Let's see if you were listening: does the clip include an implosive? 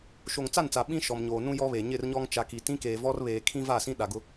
yes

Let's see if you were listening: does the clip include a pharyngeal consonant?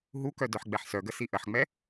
yes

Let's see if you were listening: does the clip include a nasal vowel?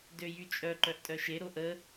no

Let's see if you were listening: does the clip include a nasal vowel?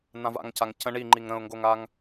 yes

